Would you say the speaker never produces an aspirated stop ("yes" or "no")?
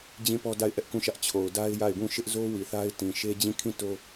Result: no